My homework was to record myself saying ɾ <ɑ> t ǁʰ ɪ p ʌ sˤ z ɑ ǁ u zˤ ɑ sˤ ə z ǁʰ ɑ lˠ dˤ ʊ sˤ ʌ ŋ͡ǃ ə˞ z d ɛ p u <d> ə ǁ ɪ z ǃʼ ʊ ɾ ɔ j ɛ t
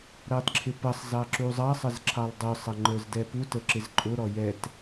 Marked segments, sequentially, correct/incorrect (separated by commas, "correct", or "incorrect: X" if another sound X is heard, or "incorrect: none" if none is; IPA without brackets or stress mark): correct, incorrect: t